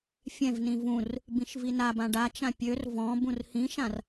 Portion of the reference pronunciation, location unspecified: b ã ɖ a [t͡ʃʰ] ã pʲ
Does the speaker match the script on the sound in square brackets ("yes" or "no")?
no